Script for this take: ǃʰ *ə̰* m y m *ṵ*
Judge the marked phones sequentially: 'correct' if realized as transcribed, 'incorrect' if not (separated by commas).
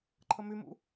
incorrect, correct